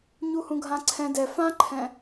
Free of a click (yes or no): no